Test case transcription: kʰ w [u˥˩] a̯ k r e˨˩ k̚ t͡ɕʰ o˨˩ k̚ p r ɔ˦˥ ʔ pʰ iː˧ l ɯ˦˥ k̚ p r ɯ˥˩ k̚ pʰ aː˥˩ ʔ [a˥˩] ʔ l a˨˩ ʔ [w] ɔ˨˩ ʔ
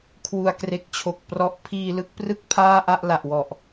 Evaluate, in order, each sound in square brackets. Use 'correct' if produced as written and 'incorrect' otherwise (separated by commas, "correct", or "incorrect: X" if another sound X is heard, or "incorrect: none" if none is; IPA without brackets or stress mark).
incorrect: u˩˦, correct, correct